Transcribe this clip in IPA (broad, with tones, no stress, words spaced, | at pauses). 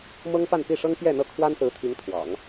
mɤ˥ŋpa˥˧n pi˥˩ʂɤ˥ŋ pjɛ˥˧n̪ɤ˥˩ kʰwa˥nsɹ̩˧˥t̪ʰi˧˥ŋ t̪ʰwɑ̰˨˩˦ŋ